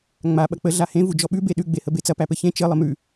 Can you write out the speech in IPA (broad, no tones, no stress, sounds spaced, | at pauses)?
ŋ͡m a ɓ ɐ k͡p ə ɮ a h ẽ v u d͡ʒ ɔ ɓ ʉ b e ɗ ʉ ɡ͡b e h ə b e t͡s ɐ p æ p ɘ ç ẽ t͡ʃ ɘ lˠ ə m ʉ